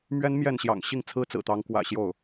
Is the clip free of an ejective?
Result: yes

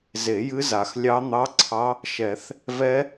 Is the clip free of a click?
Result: no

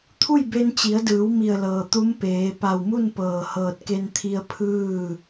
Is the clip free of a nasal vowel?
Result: yes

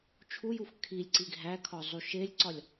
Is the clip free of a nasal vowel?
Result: yes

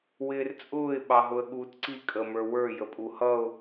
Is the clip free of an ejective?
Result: no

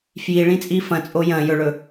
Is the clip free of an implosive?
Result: yes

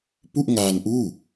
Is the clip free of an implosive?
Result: yes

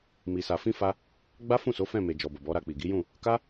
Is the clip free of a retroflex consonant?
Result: yes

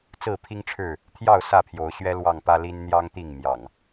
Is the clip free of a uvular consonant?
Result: yes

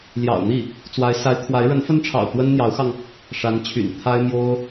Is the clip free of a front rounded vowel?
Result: no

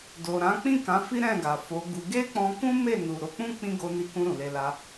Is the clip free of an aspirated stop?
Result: yes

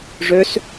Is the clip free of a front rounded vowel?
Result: no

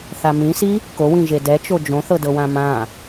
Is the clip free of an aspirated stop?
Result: yes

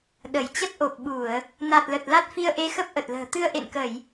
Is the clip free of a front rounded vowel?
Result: yes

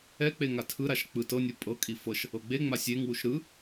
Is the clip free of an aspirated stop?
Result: no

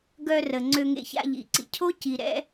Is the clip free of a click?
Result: no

